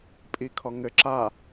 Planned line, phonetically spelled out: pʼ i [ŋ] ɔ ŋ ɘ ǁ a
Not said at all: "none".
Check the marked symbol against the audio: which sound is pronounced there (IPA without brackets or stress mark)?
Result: kʰ